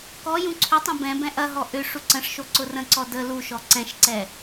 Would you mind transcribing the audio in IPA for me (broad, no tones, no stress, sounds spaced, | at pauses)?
k ɔ j ũ ǀʰ ʏ tˤ ɛ̃ b ɛ̃ b ɛ̃ ʔ ɐ ɦ ɔ ʔ ʏ ʂ u ǀ ə̃ ʂ ʃ o ǀ ʊ r ə̃ ǀ ɔ d ə l u ʃ ɔ ǀ ɛ̃ ʃ ǀ ɛ